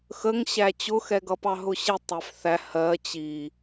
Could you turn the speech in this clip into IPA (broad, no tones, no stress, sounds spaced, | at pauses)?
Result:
x ə ŋ ɕ æ t͡ɕ ʊ x ɛ ɡ ʌ p ɑ ɦ ʊ ɕ ɪ tˤ æ f θ æ h ɜ t͡ɕ i